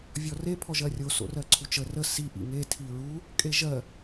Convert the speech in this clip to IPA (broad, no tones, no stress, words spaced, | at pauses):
vʲɔre pʰɔʒɜrʲo so̰rɜǀʰut͡ʃə rə si ʔḭŋe tʰiɹu | kʼeʒɜ